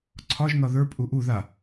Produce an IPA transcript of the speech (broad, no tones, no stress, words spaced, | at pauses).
ǀʰɒʒnɒ ðə˞pʼu ʔu ða